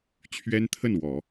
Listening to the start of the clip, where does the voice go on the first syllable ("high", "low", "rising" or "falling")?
high